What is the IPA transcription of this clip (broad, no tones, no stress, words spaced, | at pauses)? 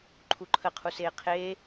ǃʰuǃʰəqʰuseː qʰeː